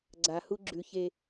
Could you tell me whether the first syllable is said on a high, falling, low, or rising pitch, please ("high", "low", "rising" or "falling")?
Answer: low